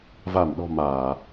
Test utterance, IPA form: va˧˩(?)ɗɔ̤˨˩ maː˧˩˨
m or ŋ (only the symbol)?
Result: m